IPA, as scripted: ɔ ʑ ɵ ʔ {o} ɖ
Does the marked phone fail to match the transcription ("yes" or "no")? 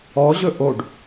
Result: no